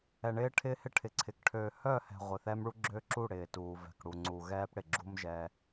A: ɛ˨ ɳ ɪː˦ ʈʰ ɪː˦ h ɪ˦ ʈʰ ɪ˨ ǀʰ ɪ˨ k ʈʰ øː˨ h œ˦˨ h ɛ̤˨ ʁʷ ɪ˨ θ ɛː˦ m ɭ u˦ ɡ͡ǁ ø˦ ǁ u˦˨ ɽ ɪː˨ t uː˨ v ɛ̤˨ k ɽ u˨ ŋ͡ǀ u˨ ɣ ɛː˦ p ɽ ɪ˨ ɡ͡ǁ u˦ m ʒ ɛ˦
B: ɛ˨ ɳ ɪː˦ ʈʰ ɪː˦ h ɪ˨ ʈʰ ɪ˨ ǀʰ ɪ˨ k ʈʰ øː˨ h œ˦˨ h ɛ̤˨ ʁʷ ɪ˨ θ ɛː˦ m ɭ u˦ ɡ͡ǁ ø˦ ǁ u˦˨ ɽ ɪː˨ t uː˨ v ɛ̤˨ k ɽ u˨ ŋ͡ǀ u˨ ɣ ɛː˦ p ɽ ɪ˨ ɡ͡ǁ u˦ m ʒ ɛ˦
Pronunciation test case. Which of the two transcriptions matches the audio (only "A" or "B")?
A